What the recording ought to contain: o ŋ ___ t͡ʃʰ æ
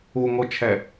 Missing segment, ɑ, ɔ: ɔ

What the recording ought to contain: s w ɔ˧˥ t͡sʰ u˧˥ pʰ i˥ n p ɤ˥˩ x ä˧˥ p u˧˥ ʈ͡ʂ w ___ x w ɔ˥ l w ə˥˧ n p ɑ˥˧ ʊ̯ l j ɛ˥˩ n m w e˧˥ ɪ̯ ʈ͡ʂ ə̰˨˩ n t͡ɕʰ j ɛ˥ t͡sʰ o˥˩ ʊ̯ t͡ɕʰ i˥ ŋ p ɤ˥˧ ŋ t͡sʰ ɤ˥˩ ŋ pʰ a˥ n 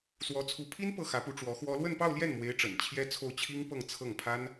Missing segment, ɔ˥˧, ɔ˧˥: ɔ˧˥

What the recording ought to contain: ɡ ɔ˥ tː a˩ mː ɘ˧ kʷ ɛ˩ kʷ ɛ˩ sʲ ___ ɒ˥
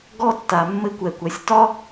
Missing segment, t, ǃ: t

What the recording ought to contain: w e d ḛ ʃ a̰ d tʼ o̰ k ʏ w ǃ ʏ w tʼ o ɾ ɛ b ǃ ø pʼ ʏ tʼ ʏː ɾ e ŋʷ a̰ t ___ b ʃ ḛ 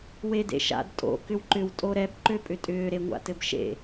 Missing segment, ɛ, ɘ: ɘ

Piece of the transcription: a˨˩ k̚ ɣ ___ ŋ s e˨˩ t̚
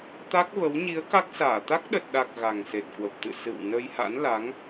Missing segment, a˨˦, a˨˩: a˨˩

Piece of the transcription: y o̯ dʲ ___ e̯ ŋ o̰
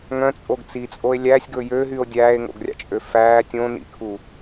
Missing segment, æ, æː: æː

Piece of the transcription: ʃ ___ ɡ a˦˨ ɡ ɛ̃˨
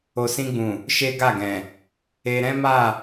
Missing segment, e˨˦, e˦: e˦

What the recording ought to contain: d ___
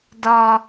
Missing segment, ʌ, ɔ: ɔ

